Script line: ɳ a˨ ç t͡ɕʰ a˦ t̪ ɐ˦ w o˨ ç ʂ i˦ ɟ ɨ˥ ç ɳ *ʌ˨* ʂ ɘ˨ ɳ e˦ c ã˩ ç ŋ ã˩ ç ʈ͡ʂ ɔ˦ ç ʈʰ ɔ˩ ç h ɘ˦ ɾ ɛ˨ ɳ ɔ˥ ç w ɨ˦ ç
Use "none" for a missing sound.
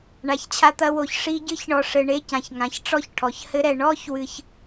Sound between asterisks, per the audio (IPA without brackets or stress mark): ɔ˨